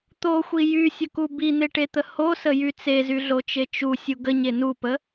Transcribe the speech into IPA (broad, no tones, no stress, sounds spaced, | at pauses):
t̪ o xʷ i j y sʲ ə k u b i n̪ e ʈ e t̪ ə h o s ə j y t͡s e z y ɮ o t͡ʃ e t͡ʃ u sʲ u ɡ ə ɲ e n u p ə